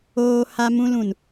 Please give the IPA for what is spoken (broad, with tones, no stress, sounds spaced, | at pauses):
oː˦ h a˦ m ũ˦ l ũ˨ n